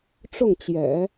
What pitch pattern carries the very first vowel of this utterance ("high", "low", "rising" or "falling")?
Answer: falling